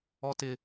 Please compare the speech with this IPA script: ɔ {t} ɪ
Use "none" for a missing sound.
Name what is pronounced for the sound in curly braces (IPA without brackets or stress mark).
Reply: t